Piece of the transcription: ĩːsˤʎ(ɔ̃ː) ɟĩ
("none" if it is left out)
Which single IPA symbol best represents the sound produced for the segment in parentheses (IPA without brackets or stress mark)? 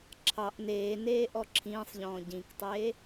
ɔ̃ː